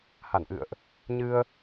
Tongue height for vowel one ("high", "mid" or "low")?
low